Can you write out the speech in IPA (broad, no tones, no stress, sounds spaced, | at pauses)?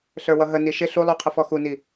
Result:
ɬ ə˞ w ʌ ɦ ə n i ʃ ɪ ɬ u lˠ u qʰ ə f ɔ x u n i